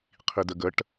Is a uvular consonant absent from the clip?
no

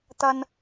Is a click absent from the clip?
yes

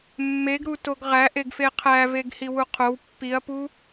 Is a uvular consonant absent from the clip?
no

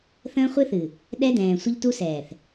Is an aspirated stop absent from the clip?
yes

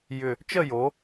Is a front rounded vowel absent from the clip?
no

